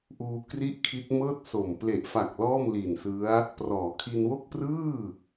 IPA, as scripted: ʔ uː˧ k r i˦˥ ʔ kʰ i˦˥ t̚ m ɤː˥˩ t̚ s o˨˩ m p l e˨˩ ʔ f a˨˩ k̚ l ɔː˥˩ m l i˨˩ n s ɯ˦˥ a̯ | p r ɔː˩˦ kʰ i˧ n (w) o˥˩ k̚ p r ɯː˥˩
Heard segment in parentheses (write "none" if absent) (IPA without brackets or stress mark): w